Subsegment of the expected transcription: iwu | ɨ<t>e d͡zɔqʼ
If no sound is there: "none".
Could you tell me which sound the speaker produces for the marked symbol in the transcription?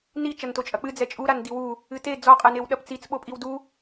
t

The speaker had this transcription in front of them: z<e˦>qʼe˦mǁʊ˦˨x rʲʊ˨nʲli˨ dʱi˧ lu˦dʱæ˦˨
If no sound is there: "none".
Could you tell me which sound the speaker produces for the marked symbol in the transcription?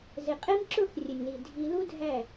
e˨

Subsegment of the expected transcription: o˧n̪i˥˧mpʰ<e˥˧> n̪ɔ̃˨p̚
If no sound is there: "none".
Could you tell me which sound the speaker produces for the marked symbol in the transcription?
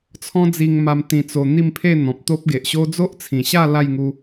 e˥˧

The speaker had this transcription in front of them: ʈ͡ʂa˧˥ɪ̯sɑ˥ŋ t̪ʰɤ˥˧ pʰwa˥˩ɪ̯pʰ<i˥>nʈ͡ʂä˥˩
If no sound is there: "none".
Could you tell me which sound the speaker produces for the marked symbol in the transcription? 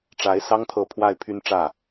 y˥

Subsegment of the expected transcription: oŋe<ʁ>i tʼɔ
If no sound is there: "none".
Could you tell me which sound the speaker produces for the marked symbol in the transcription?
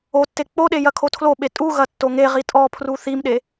ʁ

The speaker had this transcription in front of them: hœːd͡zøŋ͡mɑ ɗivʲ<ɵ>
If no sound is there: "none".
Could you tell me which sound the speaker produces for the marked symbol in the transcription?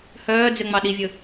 ɵ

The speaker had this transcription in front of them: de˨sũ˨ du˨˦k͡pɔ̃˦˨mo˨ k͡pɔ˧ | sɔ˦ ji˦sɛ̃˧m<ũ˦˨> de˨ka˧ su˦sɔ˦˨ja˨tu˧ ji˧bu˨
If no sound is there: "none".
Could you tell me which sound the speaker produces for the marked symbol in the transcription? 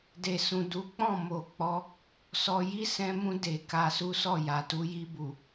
ũ˧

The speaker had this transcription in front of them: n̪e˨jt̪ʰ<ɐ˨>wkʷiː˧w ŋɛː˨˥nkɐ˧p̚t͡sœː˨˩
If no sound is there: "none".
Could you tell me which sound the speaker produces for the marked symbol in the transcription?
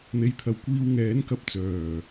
ɐ˨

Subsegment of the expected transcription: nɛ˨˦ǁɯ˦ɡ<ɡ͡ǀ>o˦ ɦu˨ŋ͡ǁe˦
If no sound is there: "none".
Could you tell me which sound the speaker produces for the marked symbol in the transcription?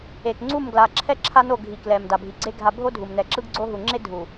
ɡ͡ǀ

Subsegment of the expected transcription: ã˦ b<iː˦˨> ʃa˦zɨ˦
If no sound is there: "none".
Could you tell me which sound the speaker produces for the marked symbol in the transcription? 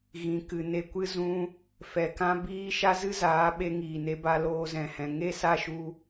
iː˦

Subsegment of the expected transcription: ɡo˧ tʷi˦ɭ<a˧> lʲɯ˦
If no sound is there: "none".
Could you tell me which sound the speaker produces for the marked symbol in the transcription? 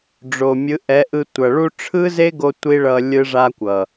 ʌ˧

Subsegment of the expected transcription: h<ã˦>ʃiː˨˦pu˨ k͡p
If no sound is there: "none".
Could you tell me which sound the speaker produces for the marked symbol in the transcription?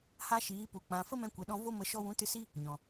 a˦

